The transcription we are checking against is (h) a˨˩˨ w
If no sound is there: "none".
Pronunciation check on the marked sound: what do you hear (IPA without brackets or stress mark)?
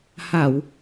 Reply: h